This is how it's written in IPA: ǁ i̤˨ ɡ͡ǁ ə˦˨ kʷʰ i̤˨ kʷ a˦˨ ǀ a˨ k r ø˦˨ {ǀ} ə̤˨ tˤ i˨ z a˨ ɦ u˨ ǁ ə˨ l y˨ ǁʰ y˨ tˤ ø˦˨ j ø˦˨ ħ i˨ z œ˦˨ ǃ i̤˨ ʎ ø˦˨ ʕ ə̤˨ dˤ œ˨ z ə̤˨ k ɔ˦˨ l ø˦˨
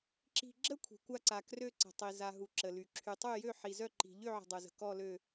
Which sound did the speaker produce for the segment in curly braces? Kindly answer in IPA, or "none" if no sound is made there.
ǀ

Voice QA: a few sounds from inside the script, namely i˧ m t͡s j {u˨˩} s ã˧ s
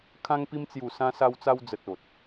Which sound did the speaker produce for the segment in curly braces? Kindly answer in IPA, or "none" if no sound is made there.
u˨˩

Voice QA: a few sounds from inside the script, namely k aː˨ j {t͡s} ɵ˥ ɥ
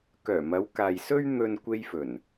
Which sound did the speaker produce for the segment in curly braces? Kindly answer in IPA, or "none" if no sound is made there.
s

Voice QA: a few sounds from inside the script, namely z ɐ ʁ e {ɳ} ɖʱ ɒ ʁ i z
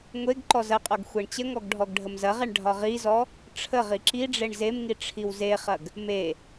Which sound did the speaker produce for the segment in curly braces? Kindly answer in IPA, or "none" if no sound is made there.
ɳ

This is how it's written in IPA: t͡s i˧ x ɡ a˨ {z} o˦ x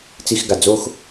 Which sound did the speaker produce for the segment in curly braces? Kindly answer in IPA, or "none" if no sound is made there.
d͡z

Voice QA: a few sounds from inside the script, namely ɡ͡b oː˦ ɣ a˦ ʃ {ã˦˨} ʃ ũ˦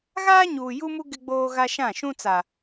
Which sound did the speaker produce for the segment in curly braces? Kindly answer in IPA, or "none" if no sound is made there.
ã˦˨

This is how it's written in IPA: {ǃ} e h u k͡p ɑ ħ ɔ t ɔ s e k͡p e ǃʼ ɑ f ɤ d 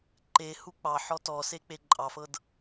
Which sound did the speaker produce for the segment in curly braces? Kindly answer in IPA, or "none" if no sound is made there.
ǃ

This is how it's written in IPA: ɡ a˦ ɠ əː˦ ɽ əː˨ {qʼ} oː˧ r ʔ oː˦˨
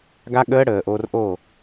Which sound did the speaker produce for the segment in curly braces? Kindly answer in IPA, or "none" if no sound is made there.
ʔ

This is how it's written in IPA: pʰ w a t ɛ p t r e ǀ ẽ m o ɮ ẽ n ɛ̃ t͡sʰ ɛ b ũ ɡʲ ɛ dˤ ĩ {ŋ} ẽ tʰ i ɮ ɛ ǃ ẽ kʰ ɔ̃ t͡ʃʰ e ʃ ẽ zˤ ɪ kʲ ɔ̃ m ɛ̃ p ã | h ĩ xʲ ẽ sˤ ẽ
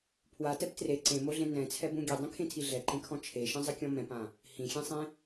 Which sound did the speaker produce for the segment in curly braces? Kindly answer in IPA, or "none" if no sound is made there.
kʰ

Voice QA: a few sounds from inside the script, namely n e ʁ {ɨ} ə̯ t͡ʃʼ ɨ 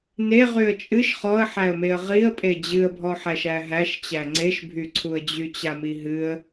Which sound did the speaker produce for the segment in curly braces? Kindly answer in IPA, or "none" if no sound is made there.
y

